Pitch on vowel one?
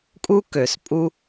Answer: high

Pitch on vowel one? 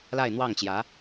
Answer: falling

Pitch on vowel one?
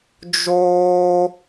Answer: high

